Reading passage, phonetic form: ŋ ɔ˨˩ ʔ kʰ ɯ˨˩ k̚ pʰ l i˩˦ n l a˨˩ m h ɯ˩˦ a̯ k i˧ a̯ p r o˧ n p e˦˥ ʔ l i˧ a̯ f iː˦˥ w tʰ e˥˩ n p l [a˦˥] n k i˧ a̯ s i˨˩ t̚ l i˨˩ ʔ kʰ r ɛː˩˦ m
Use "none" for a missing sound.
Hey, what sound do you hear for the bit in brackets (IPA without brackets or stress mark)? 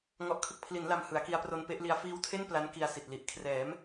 a˦˥